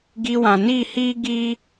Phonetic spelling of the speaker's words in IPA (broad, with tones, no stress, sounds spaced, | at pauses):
ɡ i˧ w ã˨ n i˦˨ h iː˦ ɡ iː˦